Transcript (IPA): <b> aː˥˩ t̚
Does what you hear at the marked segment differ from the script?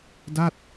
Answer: yes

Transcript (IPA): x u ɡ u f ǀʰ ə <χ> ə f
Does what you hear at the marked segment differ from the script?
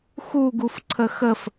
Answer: yes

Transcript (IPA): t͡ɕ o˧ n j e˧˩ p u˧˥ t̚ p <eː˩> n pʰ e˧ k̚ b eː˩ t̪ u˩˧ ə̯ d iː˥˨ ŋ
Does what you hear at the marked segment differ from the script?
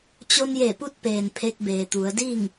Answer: no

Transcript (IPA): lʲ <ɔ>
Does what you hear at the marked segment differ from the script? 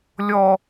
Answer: no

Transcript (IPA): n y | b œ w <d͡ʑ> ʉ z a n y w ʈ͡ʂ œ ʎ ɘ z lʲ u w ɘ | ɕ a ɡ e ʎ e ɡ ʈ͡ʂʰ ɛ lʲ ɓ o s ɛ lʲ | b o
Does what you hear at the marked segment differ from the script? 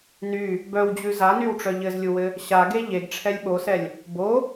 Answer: no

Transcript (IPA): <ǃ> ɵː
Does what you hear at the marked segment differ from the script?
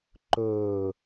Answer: no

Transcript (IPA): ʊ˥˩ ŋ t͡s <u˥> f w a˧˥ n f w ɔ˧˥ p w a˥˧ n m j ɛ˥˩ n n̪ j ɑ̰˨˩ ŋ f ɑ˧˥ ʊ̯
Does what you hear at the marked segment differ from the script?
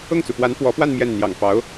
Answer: yes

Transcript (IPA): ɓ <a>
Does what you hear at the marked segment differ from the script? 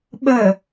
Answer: yes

